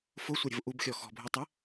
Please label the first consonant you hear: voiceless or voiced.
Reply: voiceless